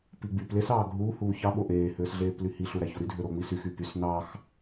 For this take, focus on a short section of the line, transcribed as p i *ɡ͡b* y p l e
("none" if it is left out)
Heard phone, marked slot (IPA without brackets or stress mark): ɡ͡b